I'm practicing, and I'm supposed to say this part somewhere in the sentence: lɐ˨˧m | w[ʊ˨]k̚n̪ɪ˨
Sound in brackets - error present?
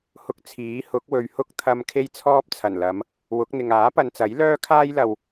yes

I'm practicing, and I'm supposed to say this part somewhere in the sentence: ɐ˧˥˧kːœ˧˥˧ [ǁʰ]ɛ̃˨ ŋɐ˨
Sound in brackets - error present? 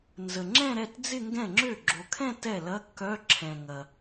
no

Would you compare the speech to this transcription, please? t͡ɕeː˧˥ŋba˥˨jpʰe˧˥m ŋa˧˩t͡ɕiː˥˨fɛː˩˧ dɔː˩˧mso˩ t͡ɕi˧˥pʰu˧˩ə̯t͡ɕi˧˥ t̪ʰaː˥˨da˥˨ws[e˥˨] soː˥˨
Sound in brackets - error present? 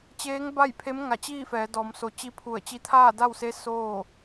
yes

